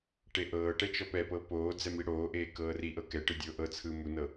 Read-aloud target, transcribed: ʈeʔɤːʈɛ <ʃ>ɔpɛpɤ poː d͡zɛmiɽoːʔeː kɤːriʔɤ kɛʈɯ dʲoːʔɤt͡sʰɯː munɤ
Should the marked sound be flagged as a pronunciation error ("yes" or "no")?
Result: yes